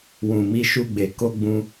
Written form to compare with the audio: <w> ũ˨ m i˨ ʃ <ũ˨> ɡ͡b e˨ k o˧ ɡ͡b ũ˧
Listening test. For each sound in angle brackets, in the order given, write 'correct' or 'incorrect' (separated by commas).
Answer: correct, incorrect